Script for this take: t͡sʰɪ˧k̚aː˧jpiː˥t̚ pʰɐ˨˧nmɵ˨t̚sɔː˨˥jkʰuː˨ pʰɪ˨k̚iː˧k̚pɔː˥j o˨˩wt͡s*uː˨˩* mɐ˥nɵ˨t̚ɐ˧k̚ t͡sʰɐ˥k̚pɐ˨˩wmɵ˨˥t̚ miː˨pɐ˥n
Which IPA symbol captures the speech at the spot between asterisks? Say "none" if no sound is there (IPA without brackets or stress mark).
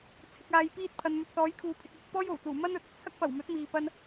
uː˨˩